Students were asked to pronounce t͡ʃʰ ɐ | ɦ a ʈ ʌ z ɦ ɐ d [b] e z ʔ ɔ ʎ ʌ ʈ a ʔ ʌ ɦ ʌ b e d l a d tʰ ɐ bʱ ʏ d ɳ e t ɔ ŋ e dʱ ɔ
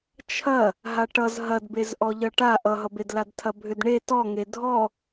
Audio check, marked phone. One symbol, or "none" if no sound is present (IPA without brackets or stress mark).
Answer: b